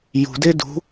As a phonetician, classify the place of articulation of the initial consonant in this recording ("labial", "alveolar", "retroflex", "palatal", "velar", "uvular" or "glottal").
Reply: palatal